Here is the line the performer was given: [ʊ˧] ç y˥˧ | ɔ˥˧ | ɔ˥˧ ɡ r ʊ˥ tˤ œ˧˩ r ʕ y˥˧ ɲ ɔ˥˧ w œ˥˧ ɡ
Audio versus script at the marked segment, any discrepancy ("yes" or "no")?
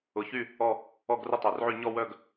no